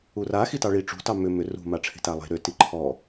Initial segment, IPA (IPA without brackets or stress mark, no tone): u